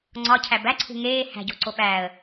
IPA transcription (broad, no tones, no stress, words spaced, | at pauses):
ŋ͡ǀɒcʰæb æǀʰṳ ŋeː hæ̤ɟo̤ǀo ɓæːə̯